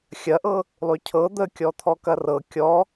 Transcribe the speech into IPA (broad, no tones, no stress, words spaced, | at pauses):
xʲɐʔɤ | lˠycʰɤ d̪əkʲɔ t̪ʰɔkɐrɤ kʲɔ